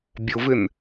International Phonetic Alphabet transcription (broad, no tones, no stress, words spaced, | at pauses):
bʲʊvɪn